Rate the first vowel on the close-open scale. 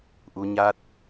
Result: close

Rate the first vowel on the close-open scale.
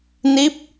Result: close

